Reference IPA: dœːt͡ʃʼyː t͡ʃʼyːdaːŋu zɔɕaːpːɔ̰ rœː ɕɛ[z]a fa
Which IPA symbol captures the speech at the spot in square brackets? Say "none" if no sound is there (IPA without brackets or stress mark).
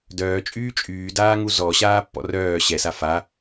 s